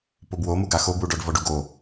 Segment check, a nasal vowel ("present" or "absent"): absent